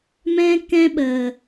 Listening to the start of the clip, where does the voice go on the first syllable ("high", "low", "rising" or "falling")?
high